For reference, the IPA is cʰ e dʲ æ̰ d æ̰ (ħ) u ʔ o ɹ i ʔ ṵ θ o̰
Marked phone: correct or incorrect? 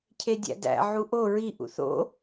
incorrect: ʕ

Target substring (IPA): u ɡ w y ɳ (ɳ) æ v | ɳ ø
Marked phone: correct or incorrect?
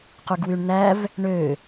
incorrect: n̪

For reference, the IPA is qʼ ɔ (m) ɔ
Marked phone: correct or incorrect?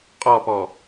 incorrect: p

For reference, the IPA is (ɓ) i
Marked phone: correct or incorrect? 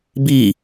incorrect: b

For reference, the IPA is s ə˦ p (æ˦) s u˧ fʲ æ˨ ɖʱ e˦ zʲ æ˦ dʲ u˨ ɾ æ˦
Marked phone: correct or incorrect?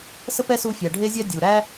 incorrect: ɛ˦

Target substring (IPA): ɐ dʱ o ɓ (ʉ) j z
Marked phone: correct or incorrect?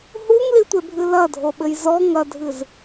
incorrect: ɘ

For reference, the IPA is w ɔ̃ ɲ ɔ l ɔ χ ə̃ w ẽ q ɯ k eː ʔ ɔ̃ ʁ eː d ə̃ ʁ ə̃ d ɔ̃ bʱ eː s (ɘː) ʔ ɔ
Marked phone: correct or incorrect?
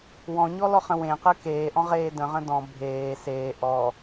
incorrect: eː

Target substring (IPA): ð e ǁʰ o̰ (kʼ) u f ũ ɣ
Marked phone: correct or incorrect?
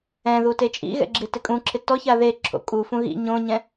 correct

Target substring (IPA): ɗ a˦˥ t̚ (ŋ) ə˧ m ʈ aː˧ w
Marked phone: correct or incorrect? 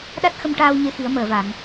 incorrect: x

